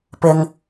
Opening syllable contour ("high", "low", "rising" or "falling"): low